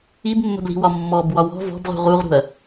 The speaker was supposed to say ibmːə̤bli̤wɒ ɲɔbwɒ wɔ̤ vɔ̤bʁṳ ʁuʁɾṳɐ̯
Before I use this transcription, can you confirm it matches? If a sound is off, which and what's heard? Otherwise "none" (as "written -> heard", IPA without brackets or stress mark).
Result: ɲ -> mː